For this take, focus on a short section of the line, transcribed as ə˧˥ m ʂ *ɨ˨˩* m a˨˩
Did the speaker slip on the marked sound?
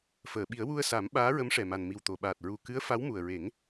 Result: yes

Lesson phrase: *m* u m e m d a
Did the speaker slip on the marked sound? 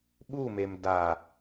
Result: yes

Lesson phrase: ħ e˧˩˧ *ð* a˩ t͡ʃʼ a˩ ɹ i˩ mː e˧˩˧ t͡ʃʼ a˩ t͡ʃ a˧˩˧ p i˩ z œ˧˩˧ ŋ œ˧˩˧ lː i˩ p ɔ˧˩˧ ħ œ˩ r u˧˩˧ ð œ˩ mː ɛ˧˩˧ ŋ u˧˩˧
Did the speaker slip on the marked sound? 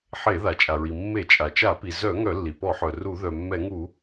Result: no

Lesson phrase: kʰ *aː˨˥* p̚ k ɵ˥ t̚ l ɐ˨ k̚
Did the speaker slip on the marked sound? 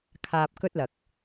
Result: yes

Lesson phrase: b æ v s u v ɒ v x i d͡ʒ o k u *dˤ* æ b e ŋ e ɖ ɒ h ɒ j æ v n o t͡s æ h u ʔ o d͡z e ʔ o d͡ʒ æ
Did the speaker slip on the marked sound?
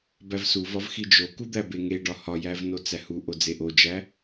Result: yes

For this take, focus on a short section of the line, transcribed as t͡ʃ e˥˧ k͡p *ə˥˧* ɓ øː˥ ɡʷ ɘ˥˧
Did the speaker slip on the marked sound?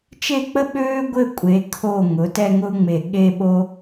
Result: yes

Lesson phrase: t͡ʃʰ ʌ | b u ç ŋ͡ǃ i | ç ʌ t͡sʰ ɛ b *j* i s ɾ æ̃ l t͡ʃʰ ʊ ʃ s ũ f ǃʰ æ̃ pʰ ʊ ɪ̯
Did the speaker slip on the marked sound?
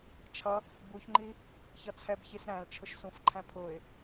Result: yes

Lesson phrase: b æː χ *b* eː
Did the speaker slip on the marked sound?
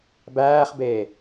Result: no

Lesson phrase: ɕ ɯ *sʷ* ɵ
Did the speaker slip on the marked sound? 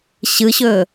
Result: yes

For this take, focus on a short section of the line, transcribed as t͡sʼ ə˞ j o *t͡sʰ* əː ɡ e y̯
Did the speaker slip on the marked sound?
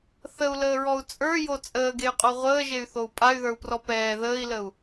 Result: yes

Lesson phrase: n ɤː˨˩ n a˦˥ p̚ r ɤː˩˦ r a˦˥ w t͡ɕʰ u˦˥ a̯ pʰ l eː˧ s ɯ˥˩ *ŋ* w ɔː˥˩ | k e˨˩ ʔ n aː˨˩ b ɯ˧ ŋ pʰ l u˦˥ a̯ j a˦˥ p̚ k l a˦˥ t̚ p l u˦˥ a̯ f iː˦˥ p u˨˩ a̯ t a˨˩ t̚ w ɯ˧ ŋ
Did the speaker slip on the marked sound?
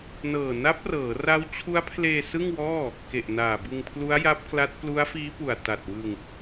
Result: no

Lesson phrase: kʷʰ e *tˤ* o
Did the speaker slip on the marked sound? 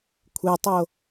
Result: no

